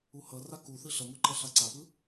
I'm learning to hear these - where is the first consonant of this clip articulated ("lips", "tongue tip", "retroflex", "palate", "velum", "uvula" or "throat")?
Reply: throat